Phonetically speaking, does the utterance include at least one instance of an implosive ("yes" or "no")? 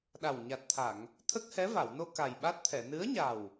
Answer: yes